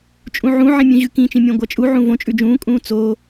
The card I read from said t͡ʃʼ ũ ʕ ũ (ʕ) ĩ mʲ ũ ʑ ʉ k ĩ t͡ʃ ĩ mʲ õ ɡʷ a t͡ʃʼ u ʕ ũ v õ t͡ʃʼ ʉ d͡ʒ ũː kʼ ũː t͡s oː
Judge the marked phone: correct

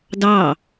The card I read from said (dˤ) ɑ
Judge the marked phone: incorrect: d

